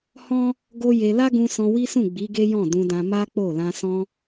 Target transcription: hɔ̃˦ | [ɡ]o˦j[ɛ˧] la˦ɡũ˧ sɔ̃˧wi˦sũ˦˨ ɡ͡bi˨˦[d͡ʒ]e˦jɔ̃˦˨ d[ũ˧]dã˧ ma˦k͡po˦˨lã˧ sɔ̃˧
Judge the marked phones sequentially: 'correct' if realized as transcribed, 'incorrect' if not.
correct, incorrect, incorrect, correct

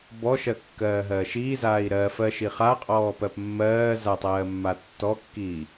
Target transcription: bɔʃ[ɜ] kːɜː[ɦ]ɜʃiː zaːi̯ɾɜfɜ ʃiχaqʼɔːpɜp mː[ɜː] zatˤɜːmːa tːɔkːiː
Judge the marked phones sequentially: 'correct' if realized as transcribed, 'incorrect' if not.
correct, correct, correct

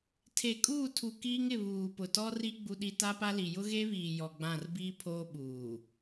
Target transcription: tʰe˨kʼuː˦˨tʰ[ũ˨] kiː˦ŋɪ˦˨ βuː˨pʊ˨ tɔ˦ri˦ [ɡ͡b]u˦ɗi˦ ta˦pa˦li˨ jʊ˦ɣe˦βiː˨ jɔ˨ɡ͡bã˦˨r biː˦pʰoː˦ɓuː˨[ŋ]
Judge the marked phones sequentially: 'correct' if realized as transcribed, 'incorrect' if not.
incorrect, correct, incorrect

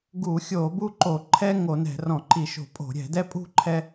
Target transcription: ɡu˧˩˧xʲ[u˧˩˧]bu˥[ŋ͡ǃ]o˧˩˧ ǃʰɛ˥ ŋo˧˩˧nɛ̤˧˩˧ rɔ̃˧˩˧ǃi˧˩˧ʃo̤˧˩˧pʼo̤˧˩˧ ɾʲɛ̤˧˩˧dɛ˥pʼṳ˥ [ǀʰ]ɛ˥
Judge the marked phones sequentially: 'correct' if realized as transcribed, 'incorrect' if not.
incorrect, incorrect, incorrect

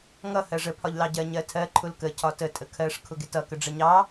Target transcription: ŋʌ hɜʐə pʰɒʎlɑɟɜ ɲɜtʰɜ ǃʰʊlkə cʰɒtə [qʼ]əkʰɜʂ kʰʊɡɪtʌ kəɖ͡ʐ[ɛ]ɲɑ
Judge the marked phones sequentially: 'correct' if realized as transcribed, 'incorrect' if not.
incorrect, incorrect

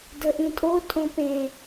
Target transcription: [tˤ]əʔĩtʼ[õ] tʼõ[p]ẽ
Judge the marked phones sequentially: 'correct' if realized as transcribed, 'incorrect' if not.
incorrect, incorrect, correct

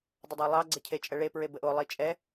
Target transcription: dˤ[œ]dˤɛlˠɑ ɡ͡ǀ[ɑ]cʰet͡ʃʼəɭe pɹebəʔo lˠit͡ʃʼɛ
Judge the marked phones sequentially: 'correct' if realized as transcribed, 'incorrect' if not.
incorrect, incorrect

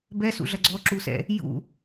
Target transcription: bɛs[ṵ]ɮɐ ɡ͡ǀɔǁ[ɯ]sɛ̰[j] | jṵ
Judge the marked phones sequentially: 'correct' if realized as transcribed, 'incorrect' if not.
correct, incorrect, incorrect

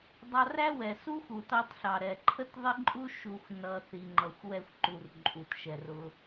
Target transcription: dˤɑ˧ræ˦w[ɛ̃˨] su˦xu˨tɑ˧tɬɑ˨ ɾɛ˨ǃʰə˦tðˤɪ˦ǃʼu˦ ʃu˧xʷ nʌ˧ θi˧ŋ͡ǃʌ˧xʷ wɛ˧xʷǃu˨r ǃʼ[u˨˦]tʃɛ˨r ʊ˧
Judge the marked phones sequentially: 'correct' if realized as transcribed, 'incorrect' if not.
incorrect, incorrect

